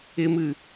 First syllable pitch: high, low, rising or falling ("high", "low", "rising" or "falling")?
high